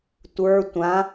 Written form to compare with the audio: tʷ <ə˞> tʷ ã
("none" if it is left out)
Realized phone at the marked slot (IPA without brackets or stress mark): ə˞